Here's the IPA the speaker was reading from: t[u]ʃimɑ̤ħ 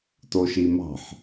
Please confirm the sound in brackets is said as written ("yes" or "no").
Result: no